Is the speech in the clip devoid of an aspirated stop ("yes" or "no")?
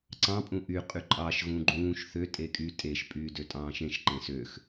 yes